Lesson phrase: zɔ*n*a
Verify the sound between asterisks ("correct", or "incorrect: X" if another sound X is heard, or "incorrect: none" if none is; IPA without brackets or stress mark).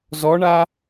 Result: incorrect: ɳ